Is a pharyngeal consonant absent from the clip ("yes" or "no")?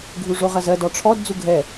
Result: yes